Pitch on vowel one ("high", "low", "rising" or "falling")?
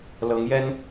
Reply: rising